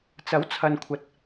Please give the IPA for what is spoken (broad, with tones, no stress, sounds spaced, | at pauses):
t͡s ɐ˨˥ w t͡sʰ ɐ˨ n kʷʰ ɐ˨ t̚